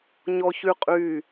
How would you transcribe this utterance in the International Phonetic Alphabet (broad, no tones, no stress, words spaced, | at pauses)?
ɲɔçyqʼy